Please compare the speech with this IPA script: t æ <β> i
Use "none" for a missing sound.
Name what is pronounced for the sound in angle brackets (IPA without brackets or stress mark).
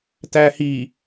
h